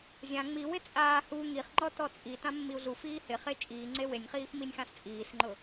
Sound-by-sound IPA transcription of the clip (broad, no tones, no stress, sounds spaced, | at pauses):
zʲ ã ŋ͡m i w e t͡sʼ aː h u ŋ i χ ŋ͡ǃ ɔ t ɔ t͡sʼ i t ã mː i u̯ ɮ u f iː h ɪ χ e t͡ʃʼ iː ŋ͡ǀ e w e nʲ χ iː x m i nʲ x ã s t͡sʼ iː s ŋ͡ǃ ʊ